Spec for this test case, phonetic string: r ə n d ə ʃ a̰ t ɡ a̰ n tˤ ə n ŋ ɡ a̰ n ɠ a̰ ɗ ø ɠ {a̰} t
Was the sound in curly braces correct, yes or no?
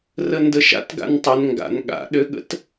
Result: no